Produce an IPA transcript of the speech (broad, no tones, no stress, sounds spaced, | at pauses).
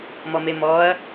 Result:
m ɔ m e m ɔ ɐ̯